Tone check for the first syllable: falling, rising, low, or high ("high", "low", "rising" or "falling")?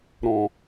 low